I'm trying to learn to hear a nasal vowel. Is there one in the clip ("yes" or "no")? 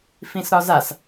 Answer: yes